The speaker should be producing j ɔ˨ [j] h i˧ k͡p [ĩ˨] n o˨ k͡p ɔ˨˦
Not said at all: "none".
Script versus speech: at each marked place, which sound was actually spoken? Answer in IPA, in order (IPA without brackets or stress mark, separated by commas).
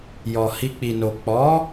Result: none, i˨